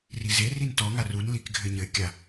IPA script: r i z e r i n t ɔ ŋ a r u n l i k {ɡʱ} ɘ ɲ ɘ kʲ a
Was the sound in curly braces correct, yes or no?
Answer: yes